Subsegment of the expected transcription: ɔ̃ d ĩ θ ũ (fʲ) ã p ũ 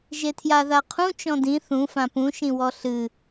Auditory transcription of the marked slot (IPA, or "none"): f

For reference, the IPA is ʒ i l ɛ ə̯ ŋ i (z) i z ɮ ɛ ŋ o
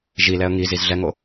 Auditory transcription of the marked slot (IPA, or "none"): z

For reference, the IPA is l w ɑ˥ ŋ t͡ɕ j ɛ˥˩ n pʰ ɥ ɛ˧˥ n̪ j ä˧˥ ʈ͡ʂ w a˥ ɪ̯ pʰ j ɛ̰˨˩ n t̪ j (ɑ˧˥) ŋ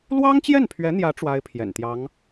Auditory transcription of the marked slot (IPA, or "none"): ɑ˧˥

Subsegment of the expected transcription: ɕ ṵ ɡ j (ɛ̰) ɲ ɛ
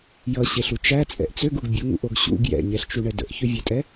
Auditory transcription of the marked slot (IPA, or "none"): ɛ̰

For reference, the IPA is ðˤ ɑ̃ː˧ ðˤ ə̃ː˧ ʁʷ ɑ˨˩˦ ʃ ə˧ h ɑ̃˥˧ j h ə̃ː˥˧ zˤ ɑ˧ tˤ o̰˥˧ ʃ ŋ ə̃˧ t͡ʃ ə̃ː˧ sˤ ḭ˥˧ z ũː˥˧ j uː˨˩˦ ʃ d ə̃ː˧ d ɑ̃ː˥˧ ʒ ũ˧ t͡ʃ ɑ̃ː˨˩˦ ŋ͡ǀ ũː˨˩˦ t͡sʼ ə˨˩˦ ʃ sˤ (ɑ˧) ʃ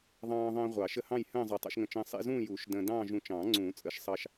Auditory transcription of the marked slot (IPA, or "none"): ɑ˧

